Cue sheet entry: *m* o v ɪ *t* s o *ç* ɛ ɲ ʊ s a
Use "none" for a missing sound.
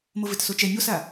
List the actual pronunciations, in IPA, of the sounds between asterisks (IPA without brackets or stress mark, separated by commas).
m, t, t͡ʃ